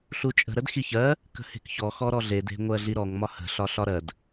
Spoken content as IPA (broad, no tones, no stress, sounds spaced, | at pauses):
ɬ u t͡ʃʼ ə̤ ɾ ə d x i ç ɜ | k ə̤ h e̤ k ç ɔ x ɔ ɾ ɔ ɮ e d e̤ ŋʷ ɜ ɮ i ɾ ɔ ŋ m ɒ h ə̤ ɬ ɒ ɬ ɒ ɾ ɜ d